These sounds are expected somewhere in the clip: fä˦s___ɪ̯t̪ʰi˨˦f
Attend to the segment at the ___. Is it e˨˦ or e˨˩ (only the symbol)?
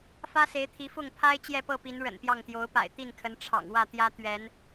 e˨˦